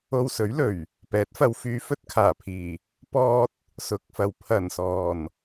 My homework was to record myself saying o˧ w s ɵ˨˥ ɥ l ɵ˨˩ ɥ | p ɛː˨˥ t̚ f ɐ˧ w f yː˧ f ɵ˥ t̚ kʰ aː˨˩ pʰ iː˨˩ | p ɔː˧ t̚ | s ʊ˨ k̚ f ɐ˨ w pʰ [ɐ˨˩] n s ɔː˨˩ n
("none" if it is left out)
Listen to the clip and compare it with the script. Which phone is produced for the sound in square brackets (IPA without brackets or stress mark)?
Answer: ɐ˨˩